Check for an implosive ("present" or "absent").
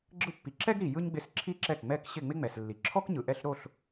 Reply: absent